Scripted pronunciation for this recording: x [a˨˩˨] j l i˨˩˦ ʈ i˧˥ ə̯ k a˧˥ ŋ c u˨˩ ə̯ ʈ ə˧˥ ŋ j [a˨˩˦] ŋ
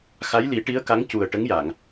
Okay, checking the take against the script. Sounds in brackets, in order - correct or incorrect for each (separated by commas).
incorrect, incorrect